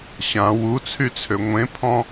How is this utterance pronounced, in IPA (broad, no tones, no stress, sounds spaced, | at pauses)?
ɕ ã w u t͡sʰ y t͡sʰ ø ŋʷ ẽ pʰ ɔ̃